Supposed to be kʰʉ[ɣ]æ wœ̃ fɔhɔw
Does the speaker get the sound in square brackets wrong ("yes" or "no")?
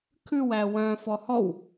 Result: yes